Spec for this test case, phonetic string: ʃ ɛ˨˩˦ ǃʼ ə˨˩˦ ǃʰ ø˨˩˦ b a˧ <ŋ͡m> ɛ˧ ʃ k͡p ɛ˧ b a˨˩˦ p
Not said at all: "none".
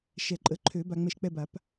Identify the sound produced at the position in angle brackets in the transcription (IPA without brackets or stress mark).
ŋ͡m